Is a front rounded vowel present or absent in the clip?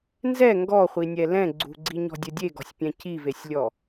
absent